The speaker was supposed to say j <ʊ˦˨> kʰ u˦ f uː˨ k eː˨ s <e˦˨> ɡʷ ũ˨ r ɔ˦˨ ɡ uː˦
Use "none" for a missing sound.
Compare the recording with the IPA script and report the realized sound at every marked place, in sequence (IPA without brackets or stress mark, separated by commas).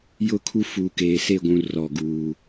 ʊ˦˨, e˦˨